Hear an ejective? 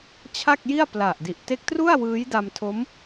no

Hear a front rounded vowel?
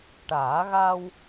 no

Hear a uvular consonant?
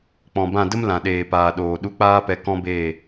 no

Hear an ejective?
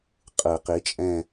yes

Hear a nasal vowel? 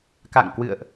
no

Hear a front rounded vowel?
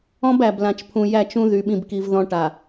yes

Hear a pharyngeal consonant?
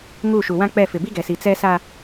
no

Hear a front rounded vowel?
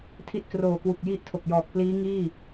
no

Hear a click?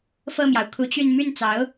no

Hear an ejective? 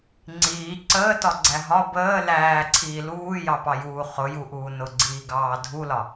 no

